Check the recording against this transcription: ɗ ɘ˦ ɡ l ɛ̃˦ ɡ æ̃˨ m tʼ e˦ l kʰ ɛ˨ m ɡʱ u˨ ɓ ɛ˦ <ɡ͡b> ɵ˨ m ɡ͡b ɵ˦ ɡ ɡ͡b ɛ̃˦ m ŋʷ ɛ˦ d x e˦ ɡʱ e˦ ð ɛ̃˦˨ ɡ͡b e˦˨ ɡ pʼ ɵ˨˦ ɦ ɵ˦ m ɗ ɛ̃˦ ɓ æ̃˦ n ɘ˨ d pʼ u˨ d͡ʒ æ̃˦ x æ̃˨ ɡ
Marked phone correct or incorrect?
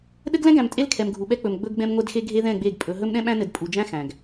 incorrect